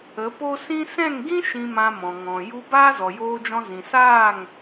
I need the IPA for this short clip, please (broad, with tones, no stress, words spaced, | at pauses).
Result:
ə˨˦po˦ sĩ˦ sɛ̃˦˨ŋɡĩ˦ ʃĩ˧mã˧mɔ̃˨ ŋɔ̃˨ ju˧ baː˦zɔ˨joː˧d͡ʒɔ̃˧ zĩ˨saː˦˨ŋ